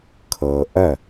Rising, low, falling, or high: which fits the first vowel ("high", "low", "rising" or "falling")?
low